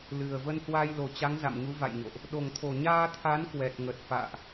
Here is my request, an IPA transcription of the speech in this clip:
l ɨ˨˩ ə̯ v ə˧ n h w a˧ j l o˨˩ t͡ɕ a˨˦ ŋ z a̰˧˨ m ɲ u˨˦ v a̰˧˨ j ɲ o̰˧˨ ʔ | ɗ o˨˩ ŋ t̪ʰ o˨˩ ɲ aː˧ t̪ʰ a˨˦ n k w ɛ˨˩ t̚ ŋ ə˨˩ t̚ f a̰ː˧˨ ʔ

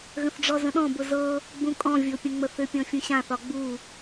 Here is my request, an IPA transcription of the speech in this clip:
ɣ ə̃ θ ɖ͡ʐ ɔ z ə̃ ɗ ɔ̃ b ʊ z ɤ | ɡ͡b ũ kʼ ɔ̃ vʲ o pʲ ə̃ ŋ͡m ə θ ʏ pʲ ɔ̃ fʲ ũ ɕ ã θ ɒ ɡ͡b u

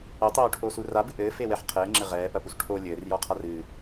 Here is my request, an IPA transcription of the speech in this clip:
ɘ tˤ oː ʈʰ oː s u r a b ɨ ʔ ɘː f e w ɛ ħ qʰ ɘː ŋ͡ǁ ɘ ʁ ɛː p ɐ p u s ʈʰ o lʲ ɘː r j ɔ qʰ a r ɨ

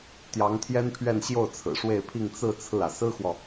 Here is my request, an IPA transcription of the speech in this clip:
t̪ j ɑ˧˥ ŋ t̪ʰ j ɛ˥ n pʰ ɥ ɛ˥˧ n ɕ j o˥˩ ʊ̯ t͡sʰ ɹ̩˨˩ ʂ w e˥˧ ɪ̯ pʰ i˥˧ ŋ t͡s ɹ̩˥˧ t͡sʰ ɹ̩˥˩ ä˩ s ɹ̩˥ x w ɔ˨

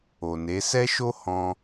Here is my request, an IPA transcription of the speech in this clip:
o˨ n e˨˦ s ɛ˦ ʃ o˦ h ɔ̃˦

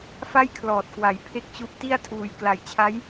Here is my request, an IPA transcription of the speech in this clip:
f a˥˩ j kʰ l ɔː˨˩ t̚ k w a˩˦ j pʰ e˥˩ k̚ t͡ɕ u˦˥ ʔ t i˥˩ a̯ tʰ uː˨˩ j k l a˨˩ j t͡ɕʰ a˦˥ j

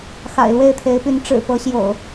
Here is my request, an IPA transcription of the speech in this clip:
x a̰˨˩ ɪ̯ l w e˥˨ ɪ̯ t̪ʰ e˨˦ ɪ̯ p y˨˦ n ʈ͡ʂ ɻ̩˨˩ p ɤ˨˦ ɕ j o̰˨˩ ʊ̯

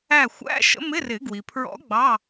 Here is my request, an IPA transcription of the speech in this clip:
æ˧˩ xʷ æ̰˧˥˧ ʃ ə̰˧˥ m ɪ˧˥˧ r ɪ˨˩˦ ɡ w i˩ pʰ ɹ ɔ̰˧˥ ɡ͡b ɑ˧˥˧

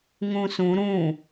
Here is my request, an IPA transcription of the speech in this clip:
ŋ ũ s ũ ɾ ũ

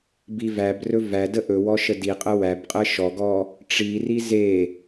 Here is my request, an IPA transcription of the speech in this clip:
b i v æ b r ɵ v æ d ə ʔ ɵ w ɔ ʃ ə d i qʼ ə w æ b qʼ ə ʃ ɔ ɡ ɔ | ʈ͡ʂ i r i z e

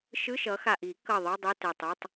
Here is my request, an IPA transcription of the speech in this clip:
ʃ ɯ˧˥˧ ʃ ʌ˨˥ x a˧˩ ʔ i˨˩˦ k ʌ˧˩ ðˤ ɯ˧˥˧ dˤ o˧˥˧ t ɛ˧˩ tˤ ɯ˧˥˧ tˤ

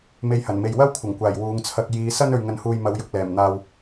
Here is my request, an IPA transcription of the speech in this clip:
m e˧ j h ɐ˨˩ n m e˨ j w ɐ˥ w kʷʰ ɐ˨˩ ŋ kʷ aː˨˩ j w uː˨˧ ŋ t͡sʰ ɐ˧ k̚ j iː˨˧ s ɐ˥ n ɵ˨ ɥ ŋ ɐ˨ n h uː˨ j m ɐ˨˧ w j ʊ˨ k̚ l ɛː˨˩ m n̪ aː˨ w

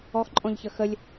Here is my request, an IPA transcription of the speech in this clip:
ɔ x ǃʼ ɔ̃ ʎ ç ə x ə lʲ

